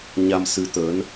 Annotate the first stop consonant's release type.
plain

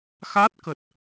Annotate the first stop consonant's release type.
plain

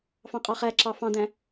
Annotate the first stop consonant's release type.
ejective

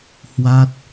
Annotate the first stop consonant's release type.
plain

